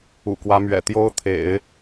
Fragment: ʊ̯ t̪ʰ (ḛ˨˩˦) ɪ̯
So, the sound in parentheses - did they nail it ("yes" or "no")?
yes